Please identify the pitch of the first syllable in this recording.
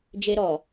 high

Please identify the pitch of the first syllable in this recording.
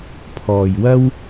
low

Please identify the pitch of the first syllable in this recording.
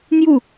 falling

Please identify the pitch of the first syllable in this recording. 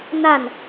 falling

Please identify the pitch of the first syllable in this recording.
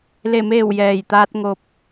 falling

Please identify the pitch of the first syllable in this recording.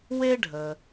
high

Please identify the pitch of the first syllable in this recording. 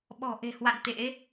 low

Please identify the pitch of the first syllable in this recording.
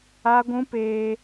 high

